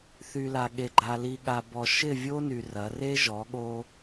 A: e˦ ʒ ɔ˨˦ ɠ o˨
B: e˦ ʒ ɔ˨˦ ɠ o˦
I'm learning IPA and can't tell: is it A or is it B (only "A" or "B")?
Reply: B